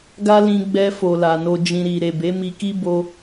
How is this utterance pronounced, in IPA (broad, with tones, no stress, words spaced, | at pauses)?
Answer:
ɡa˦lĩ˧ ɡ͡bɛ˧fo˨ la˨no˧d͡ʒĩ˧ ɾi˨ ɾe˨be˨˦mi˧ki˦ bo˦